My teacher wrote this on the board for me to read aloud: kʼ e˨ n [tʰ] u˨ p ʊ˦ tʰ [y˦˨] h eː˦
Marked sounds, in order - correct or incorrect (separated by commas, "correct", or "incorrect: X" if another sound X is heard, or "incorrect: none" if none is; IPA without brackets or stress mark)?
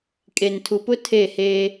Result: correct, incorrect: e˦˨